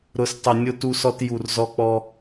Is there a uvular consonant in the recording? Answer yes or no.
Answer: no